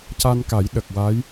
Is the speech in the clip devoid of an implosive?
no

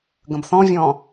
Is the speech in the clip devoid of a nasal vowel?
no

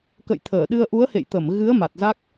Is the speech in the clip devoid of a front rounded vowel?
yes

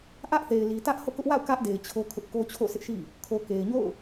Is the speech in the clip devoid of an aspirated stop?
no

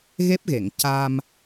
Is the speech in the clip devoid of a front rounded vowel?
yes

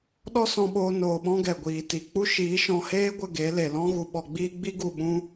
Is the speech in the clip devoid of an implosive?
no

